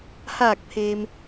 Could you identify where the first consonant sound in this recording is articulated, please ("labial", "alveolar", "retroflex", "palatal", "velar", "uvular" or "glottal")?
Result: glottal